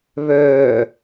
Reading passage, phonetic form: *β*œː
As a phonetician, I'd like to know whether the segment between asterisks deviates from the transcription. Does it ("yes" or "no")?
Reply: no